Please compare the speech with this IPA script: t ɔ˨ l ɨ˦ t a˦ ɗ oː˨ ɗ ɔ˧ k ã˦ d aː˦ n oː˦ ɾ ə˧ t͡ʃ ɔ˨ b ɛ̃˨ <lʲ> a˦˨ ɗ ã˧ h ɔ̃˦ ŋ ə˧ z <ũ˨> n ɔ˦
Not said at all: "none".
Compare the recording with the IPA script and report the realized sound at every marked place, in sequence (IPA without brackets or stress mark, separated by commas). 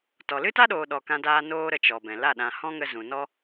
l, ũ˨